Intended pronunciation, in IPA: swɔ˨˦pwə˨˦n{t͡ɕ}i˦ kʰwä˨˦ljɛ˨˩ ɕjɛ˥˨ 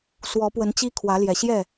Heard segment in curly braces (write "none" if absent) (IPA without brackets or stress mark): t͡ɕ